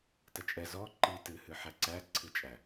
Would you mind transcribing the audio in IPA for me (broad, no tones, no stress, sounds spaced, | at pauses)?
t ɐ t͡ʃʼ ɛ z ɔ ǃ i t ɨ h ɨ ħ æ ǀ æ ǀʰ ɨ t͡ʃʼ æ